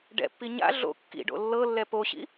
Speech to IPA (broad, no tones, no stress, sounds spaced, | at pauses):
ɖ ɛ̰ pː i ɲ a̰ ɮ o̰ kː ḭ ɖ o̰ lː ɤ lː ɛ p o ɕ ḭ